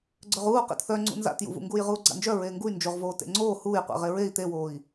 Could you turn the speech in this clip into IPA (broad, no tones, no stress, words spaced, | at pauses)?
ɡ͡ǀœʁuː qḛtθœ ŋ͡ǀṵnza̰tjṵvṵ ŋɡuːjʁuːɡ͡ǀa̰nd͡ʒœ ɹeːŋɡuy̯ nd͡ʒoʁvoː tḛŋ͡ǀoː huːj qʷḛʁeɹei̯ t̪ewoːi̯